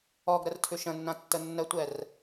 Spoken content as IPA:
ɔɡ ɾərtʰʉʃə̃nːã tːənːətʷɛr

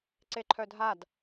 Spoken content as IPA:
ǀeǃʰœdʱad

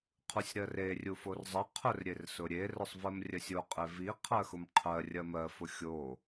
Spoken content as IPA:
qʰusʲɾɜre rʲuforzˤɐ qʰʊr ɾʲersʊɾʲe rʊsˤvɜmrʲɜsʲo qʼevi qʰɜxʊmqʰɜ rʲɐmɜ fʊxʲo

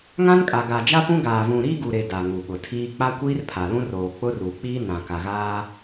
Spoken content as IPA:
ŋã˦nkʼa˨ ɡaː˨d͡ʒa˦pũ˦ ɡaː˨vũ˨ɾiː˦ ɡu˨ɾe˨ da˨ ŋu˨ɓʊ˨tʰiː˦ k͡pa˦kʷiː˦rpʰa˨lũ˦r oː˨k͡pʊ˦ru˨k͡piː˦ nã˨ka˨ɣaː˦

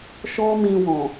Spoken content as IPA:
ʃɔ˦ mĩ˧wɔ̃˨

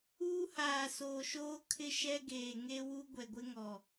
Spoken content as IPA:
uː˦haː˨soː˨ʃoː˦ kʰɪ˦ʃɛ˦ɡeː˨ ŋe˦wu˦ ɡʷɛ˨ɡʷɪ˦ŋɔ˨

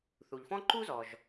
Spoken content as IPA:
θu˩ʎfɔ̃˥ǃu˥zɔ˩ʒ

